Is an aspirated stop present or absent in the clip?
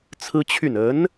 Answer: present